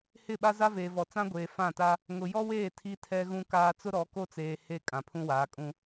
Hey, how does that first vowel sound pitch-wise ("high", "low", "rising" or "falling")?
falling